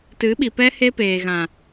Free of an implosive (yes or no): no